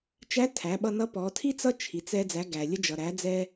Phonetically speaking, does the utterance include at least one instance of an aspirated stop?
yes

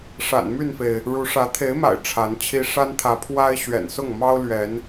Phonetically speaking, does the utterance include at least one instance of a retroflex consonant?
yes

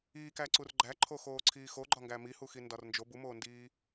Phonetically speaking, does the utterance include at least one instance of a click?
yes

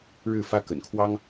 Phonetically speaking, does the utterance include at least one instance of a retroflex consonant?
yes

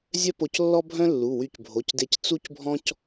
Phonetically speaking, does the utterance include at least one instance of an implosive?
no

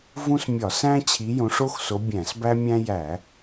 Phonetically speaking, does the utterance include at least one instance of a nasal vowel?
yes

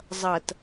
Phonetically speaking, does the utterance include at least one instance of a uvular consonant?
no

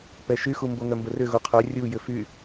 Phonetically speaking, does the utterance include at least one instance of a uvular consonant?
yes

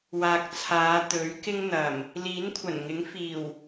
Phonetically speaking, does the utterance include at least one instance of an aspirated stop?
yes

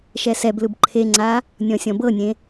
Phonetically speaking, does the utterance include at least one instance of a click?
yes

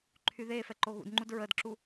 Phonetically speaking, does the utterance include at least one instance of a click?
yes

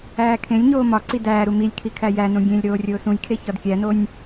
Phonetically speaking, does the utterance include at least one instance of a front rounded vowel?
no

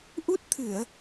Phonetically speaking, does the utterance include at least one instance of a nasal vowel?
no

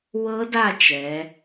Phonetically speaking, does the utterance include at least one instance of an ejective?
no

